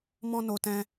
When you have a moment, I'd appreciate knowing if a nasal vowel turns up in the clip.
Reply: yes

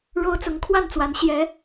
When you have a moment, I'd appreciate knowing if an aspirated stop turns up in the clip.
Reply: yes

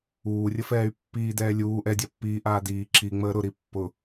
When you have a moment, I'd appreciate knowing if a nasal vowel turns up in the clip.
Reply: no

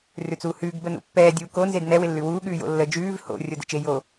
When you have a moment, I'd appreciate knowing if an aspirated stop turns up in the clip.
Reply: no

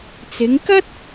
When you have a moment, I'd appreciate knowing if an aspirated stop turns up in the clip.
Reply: no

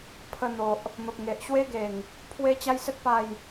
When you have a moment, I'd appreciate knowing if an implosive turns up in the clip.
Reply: no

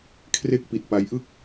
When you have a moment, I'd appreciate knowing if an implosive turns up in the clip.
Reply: no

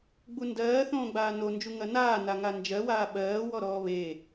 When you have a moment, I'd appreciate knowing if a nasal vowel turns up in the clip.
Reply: yes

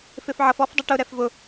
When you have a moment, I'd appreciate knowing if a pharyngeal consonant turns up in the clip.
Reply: yes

